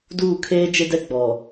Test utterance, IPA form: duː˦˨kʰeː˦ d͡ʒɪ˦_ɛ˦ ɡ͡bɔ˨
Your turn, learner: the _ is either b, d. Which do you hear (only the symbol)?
d